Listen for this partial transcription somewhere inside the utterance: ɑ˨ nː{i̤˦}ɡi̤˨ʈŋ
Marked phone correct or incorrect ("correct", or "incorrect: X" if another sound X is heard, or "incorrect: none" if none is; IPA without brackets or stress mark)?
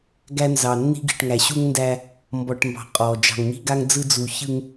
correct